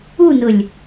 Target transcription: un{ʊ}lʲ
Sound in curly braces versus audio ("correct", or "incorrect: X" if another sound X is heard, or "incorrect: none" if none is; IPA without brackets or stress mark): correct